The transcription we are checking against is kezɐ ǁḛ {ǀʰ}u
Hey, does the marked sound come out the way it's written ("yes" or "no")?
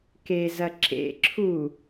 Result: no